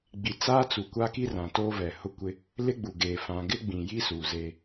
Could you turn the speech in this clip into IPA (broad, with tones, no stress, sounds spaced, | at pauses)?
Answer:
ɡ͡b i˨ t͡s aː˦ t͡s u˨ kʷ a˦ k i˦ r ã˨ t oː˦ v ɛ˨ h ʊ˦ kʷ ɪ˦ | l ɪ˦ ɡ͡b u˨ ɡ eː˨ f ã˨ ɡ ɪ˦ ɡ͡b ĩ˨ j i˦ s u˨ z e˦